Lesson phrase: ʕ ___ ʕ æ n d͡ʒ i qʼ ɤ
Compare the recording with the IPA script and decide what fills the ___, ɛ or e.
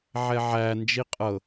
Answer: ɛ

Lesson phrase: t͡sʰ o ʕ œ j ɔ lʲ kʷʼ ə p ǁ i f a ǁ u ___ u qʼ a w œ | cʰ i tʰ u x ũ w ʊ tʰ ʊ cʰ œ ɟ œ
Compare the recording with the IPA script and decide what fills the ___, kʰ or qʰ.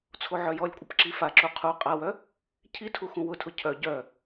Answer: qʰ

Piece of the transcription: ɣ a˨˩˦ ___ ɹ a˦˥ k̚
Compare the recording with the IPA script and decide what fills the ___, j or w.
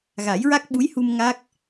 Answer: j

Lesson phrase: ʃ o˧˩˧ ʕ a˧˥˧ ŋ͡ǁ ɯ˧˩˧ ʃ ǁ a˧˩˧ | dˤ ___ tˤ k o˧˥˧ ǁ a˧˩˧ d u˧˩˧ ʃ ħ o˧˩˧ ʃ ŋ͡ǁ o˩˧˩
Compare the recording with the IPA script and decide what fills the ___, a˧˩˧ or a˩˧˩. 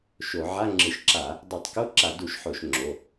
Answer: a˧˩˧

